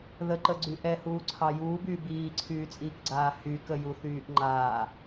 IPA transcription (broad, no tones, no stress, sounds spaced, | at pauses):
ð ə ǃ ə ɡ͡ǀ y ʔ ɛ h uː ǀʰ ɑ j uː b yː b iː ǀʰ yː t͡sʼ iː k ɡ͡ǀ aː h y k ə j u θ yː ʔ ŋ͡ǃ aː